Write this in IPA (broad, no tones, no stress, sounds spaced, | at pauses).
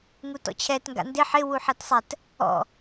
ŋ u t ɔ̰ t͡ɕʰ ɛ t ŋ ɡ a̰ n d ɪ ħ ɪ w u ħ ɛ t sˤ ɛ t | ɔ̰